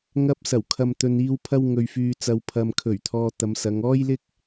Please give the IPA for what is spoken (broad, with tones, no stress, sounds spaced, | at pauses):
ŋ ɐ˧ p̚ s ɐ˨˩ w kʰ ɐ˨ m t̪ ɵ˨ n iː˧ w pʰ ɐ˥ w ŋ ɵ˧ ɥ f yː˧ t͡s ɐ˧ w pʰ ɐ˨ m kʰ ɵ˨˩ ɥ t̪ʰ ɔː˧ t̪ ɐ˨˧ m s ɐ˨˧ ŋ ɔː˥ j l ɪ˥ k̚